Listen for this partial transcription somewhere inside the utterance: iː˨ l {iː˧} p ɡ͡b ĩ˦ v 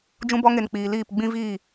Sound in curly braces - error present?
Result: yes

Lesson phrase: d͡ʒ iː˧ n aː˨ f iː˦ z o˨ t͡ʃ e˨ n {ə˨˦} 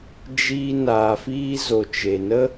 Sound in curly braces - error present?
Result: yes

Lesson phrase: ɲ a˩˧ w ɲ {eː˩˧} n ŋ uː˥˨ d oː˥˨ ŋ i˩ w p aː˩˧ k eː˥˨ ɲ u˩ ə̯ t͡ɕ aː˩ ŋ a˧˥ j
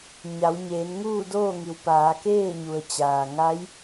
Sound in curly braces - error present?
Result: no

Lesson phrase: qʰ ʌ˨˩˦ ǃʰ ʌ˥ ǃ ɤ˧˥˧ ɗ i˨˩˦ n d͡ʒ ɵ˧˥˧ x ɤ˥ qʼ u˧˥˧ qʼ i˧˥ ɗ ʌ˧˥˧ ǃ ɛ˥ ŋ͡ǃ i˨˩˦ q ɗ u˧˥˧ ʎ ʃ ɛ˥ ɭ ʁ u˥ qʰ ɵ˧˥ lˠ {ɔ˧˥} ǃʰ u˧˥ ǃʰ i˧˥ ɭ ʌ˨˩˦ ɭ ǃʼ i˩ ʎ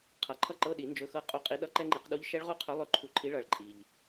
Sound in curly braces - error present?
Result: yes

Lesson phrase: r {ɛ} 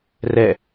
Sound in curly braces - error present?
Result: no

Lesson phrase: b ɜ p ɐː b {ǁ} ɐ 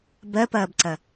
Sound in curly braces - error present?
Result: yes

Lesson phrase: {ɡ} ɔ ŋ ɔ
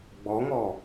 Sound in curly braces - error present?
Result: yes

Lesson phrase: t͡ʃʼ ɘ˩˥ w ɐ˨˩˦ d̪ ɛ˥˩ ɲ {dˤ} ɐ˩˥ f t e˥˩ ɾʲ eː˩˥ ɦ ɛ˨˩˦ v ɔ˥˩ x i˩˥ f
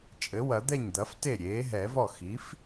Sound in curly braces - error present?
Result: yes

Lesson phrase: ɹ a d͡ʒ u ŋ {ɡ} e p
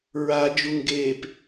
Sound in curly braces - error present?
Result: no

